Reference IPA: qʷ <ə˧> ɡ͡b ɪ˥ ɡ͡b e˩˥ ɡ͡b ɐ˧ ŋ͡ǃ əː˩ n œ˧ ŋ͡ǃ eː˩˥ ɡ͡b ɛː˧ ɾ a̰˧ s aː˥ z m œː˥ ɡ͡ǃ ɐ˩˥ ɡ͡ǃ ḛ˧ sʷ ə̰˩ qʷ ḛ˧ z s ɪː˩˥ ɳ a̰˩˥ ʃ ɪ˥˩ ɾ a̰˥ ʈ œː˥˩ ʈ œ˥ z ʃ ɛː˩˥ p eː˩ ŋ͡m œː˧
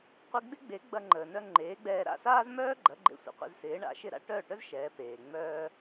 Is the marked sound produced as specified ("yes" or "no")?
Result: no